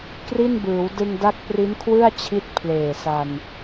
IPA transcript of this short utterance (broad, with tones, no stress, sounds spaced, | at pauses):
k r i˥˩ n b ɯː˩˦ w d ɯ˧ ŋ d a˦˥ k̚ p r i˦˥ n kʰ w ɯ˥˩ a̯ t͡ɕʰ i˥˩ t̚ pʰ l eː˨˩ s a˧ n